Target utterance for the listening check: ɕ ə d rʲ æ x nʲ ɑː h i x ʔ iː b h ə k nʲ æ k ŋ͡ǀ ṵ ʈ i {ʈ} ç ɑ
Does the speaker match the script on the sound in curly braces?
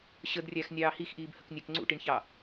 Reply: no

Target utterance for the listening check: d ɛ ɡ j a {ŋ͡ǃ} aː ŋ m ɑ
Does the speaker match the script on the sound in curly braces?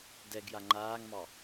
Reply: yes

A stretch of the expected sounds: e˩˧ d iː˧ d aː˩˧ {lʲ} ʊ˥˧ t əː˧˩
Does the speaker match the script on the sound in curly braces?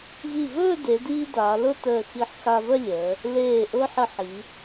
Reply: no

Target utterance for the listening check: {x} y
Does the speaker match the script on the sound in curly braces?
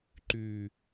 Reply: no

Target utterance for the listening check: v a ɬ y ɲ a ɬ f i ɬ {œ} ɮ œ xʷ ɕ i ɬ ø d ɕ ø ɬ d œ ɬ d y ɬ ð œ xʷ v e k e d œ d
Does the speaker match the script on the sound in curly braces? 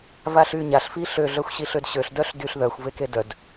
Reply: no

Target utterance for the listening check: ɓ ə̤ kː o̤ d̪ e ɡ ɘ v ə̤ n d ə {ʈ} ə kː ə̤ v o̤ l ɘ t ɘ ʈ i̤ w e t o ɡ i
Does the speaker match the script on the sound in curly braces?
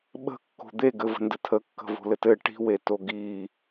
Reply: no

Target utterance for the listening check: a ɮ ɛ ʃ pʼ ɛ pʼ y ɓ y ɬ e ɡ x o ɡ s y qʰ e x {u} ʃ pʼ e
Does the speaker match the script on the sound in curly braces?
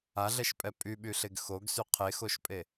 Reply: no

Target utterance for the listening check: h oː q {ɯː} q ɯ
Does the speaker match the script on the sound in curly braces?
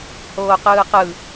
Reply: yes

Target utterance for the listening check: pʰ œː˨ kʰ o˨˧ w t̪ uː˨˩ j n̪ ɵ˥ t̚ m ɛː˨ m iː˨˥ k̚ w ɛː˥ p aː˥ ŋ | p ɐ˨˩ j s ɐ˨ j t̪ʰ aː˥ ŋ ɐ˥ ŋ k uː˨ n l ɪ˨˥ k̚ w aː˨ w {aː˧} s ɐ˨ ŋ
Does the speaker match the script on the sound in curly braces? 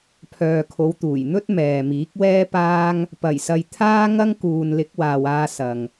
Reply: yes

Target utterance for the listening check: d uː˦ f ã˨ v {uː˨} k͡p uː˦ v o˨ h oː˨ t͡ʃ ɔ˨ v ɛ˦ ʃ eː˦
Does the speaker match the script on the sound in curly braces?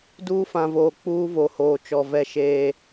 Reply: no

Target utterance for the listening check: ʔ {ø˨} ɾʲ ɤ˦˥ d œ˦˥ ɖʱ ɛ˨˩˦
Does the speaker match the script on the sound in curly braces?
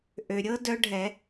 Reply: yes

